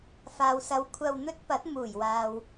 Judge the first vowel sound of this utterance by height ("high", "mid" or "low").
low